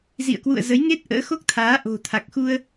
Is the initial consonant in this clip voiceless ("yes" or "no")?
no